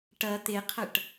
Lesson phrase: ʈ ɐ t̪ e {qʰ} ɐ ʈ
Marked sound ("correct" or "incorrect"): correct